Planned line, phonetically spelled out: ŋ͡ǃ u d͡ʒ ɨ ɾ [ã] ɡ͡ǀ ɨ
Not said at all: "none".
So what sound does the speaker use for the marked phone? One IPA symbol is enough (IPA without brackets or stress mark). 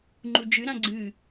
ã